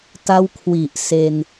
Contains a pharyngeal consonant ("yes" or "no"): no